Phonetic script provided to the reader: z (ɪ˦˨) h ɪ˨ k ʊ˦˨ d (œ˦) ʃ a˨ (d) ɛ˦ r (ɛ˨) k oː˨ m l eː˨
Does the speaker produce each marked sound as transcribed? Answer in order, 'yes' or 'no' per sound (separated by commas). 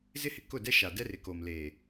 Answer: no, no, yes, no